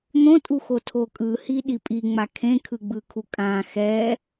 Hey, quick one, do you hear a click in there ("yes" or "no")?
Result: no